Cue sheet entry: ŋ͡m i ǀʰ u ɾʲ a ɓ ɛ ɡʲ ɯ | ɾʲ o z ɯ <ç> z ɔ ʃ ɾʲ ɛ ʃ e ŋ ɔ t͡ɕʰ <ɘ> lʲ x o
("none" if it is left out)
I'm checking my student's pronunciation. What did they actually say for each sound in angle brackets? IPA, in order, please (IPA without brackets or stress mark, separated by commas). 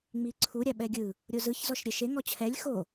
ç, ɛ